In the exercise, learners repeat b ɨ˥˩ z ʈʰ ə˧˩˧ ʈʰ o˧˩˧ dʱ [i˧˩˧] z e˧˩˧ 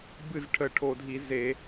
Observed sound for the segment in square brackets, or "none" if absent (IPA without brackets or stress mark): i˧˩˧